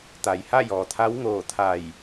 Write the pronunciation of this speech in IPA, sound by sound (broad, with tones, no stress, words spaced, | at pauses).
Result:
t̪a˩jha˥˨jɔː˩t̪ʰa˧˥w ŋoː˧˩t̪ʰa˧˩j